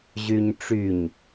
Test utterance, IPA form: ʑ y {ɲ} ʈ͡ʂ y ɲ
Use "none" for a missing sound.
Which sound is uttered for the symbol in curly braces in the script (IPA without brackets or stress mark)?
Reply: ɲ